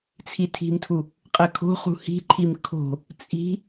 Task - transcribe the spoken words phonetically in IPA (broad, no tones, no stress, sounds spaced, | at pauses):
t͡sʰ i tʰ i̤ m tʰ u | qʼ ɘ kʰ o̤ χ ṳ h i̤ ǃʰ i m kʰ o̤ | t͡sʼ i̤